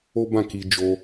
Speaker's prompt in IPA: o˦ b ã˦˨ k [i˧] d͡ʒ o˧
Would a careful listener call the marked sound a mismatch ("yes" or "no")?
no